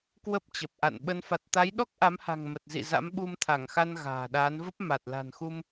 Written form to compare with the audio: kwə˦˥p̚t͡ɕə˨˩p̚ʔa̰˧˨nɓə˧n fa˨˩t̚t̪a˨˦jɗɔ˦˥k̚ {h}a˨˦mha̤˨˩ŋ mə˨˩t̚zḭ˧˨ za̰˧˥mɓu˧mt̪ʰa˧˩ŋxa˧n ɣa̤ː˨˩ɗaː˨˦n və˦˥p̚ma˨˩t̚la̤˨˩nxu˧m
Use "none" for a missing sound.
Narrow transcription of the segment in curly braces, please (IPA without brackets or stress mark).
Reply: ʔ